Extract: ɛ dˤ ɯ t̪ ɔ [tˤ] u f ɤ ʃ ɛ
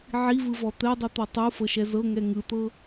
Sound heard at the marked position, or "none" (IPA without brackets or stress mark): tˤ